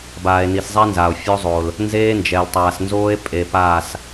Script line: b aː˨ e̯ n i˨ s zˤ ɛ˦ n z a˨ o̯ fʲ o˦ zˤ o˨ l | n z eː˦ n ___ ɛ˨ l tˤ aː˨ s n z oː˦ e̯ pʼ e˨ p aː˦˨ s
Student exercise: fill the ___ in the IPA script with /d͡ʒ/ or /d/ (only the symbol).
d͡ʒ